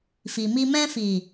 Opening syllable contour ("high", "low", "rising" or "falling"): low